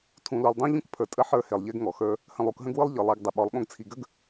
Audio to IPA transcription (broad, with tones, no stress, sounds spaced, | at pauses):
tʰ ũ˨ l u˨ lˠ dˤ õ˦ ʎ ũ˦ k pʰ ə˞˨ tʼ ə˦ ħ ə˞˦ h e˨ lˠ ʎ e˦ ɡ ŋ ɔ˨ x ə˞˦ | h ə̃˨ lˠ u˨ k ɦ ə̃˦ ɡ w ɯ˦ lˠ ʎ ɯ˨ lˠ e˨˦ ɡ dˤ ɘ˨ ɓ ɔ˨˦ lˠ ɠ õ˦ ɡ t͡sʰ i˨ ɡ ə˦ ɡ